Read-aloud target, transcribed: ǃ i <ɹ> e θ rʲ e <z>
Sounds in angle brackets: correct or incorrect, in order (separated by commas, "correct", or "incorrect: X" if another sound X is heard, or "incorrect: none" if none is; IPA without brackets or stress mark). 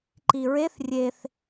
correct, incorrect: θ